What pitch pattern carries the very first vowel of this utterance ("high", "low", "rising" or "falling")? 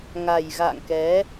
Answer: low